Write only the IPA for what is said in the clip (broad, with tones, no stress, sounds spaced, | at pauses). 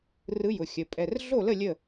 r ɯ˧˥ j ʊ˩˧˩ xʲ ə˩˧˩ pʼ ɛ˩˧˩ r ɮ o˥˨ l ə˥˨ lʲ ə˥˨